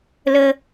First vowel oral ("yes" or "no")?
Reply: yes